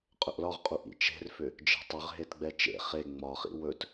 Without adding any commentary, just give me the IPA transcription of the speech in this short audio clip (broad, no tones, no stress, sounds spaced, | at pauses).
qʼ ɵ ʔ l ɒ ʁ qʼ u ʔ ḭ t͡ʃ e̤ r f ʏ | d͡ʒ e̤ tˤ ʏ ʁ ɦ e t ɡ͡b ɛ t͡ʃ ḛ χ e ŋ͡m ɒ χ ḭ w ɵ t